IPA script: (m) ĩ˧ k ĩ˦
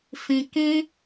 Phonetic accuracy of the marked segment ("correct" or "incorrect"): incorrect